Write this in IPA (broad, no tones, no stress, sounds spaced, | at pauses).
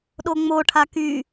ɗ o ŋ͡m o ʈʰ a k y